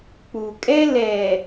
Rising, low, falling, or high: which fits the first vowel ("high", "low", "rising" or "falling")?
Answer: low